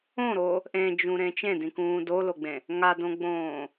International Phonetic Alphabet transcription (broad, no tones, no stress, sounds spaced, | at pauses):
õ ɾ o | ʔ ẽ d͡ʒ ũ ɾ ẽ t͡ʃ ẽ d ĩ k ũː d o l o ɡ͡b ẽ | ŋ a d õ ɡ͡b õː